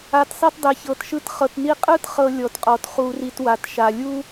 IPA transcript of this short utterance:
a˨tsˤi˧t dˤe˨çɤ˨tʃɯ˧t χɤ˨tni˧qʼɯ˦t χɤ˧lʲɔ˨tqʼɔ˨t χu˧ri˧twa˨t ʃa˨lʲu˦

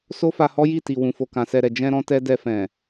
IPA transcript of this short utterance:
so˦fa˧hɔ˦ ji˦˨ti˨ wũ˨fo˨ kã˨sɛ˨ɾɛ˨ d͡ʒɛ̃˧ɾɔ̃˧tɛ˧ dɛ˧fɛ̃˨

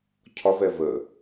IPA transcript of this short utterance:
cʰɒvɛ və

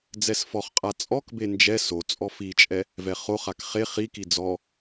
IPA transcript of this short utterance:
d͡zɛsfɔχqʼa t͡sʼɔkbe nd͡ʒɛ so t͡sʼɔfit͡ʃʼɛ | vɛχoχak χe χiki d͡zɔ

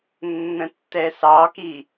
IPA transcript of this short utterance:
nːə̃tːɛsɑki

